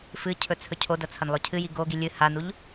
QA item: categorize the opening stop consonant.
aspirated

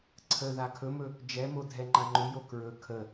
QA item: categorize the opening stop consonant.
click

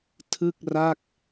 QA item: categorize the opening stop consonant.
aspirated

